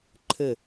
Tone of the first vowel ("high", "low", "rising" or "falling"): falling